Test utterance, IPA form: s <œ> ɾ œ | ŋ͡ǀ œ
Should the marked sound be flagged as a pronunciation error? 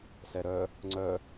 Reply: yes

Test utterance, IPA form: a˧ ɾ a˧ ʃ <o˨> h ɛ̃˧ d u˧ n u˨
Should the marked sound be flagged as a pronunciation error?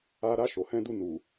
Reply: no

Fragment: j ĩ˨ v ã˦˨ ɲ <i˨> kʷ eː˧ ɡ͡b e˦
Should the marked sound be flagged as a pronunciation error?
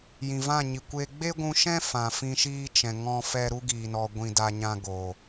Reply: no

